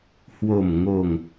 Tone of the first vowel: low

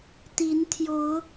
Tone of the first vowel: rising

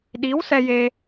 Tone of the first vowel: rising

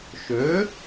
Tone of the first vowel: rising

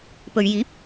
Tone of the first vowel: low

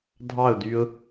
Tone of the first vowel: falling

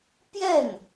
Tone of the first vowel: falling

